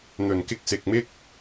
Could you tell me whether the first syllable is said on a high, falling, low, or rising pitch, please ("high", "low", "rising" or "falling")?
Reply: low